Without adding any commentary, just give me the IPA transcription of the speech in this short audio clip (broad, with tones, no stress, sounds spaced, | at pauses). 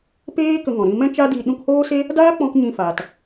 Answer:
p eː˦ k ə˧ ŋ ɔ̃˨ ɾ ĩ˧ m ɛ̃˦ t͡ʃ a˦ d i˧ ɗ ũ˧ k h oː˦ s e˦ | d aː˦ k͡p ɔ̃˧ k ɲ ĩ˧ f a˨ t